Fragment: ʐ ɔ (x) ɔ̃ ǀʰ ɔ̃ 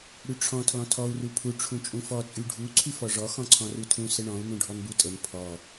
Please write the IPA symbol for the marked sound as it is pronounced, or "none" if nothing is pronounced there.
x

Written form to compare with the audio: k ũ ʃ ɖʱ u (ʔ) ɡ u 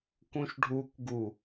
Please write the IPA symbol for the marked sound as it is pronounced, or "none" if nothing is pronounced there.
k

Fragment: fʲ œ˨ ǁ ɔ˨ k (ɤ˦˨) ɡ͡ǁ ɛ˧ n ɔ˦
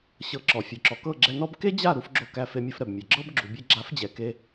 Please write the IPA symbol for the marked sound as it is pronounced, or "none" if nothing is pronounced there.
ɤ˦˨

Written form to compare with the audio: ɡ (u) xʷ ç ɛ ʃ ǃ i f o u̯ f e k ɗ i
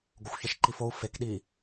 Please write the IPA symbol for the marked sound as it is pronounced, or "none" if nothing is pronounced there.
o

